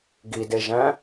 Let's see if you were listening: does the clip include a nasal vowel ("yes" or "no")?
yes